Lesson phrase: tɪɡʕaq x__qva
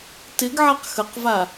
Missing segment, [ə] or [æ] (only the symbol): ə